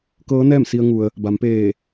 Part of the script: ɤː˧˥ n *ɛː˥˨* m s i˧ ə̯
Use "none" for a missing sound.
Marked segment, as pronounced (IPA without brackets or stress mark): ɛː˥˨